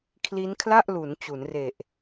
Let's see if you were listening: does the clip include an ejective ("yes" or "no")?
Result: no